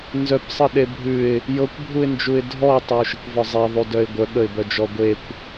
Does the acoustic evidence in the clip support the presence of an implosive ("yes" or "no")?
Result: yes